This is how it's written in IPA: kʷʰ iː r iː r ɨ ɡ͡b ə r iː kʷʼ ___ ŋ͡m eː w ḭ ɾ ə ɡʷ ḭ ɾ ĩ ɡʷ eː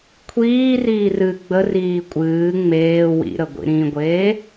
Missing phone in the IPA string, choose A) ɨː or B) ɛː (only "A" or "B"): A